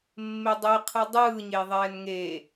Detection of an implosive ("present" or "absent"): absent